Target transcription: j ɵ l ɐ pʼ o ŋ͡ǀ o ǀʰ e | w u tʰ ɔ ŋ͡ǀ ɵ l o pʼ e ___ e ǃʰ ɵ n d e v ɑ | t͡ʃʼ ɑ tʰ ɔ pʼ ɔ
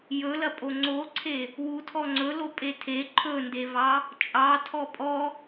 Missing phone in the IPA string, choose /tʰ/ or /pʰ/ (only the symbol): tʰ